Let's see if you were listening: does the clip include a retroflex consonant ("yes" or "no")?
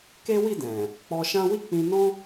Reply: no